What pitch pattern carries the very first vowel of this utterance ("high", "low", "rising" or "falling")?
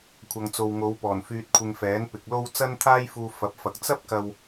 low